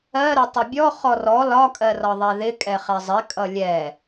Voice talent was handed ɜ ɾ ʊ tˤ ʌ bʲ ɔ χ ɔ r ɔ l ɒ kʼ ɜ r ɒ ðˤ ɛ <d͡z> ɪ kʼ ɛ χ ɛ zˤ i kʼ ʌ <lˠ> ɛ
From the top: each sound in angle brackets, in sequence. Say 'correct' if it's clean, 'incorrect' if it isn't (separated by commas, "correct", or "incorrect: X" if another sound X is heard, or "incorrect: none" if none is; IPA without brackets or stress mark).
incorrect: ð, incorrect: lʲ